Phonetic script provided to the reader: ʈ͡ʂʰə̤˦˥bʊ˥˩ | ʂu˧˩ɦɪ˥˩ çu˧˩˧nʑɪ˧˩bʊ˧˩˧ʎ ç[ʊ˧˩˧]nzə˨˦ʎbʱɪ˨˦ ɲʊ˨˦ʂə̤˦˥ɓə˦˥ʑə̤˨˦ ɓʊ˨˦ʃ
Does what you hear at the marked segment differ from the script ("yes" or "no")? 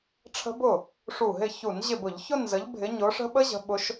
yes